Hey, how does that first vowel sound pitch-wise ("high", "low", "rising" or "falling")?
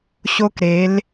high